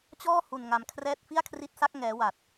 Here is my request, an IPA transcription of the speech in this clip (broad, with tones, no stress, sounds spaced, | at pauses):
t͡ɕ ɔː˥˩ h u˨˩ n ŋ a˩˦ m kʰ r ɛː˥˩ t̚ f i˥˩ a̯ kʰ r i˦˥ t̚ s a˦˥ k̚ ŋ ɛː˩˦ w a˨˩ t̚